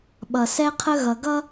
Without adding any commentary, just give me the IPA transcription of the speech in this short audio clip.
ɓʌ˨sɛ˦qʰə˦ ɣʌ˨ɡʌ˦

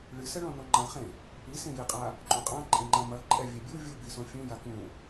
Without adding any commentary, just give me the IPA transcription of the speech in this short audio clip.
ɭɨsɛɭɔ̃ noŋ͡ǃãχẽ | i sẽjiqʼa | ǃʼũqʼãǃʼẽ ŋ͡ǃãmɐ ǃʼɛvʲɛbʲu vʲubisõ fʲũja kũ

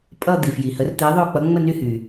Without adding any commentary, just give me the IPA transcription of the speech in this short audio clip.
pʼʌ˥˧d̪i˨fji˨hə˧˥r t̪e˧˥ðˤo˥˧k͡pʌ˧˥ ŋ͡mə˥˧ny˥˧hy˨

